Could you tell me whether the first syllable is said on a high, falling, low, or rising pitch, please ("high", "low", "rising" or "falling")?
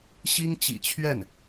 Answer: high